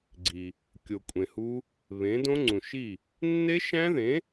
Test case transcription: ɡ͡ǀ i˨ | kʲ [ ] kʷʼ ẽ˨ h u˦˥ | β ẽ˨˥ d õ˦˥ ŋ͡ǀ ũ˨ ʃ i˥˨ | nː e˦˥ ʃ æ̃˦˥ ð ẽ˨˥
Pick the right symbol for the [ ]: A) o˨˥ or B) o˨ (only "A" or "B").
B